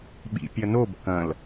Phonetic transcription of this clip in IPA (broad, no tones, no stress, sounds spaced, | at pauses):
ɓ ḭ pʲ ɐ n o b k ɐ̃ l